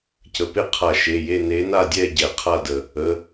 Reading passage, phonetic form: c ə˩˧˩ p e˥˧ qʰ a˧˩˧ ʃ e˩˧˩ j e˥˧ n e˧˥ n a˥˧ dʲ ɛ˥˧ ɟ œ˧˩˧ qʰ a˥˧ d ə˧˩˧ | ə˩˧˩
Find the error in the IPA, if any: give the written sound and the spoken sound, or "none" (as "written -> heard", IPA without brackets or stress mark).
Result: œ˧˩˧ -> ɛ˧˩˧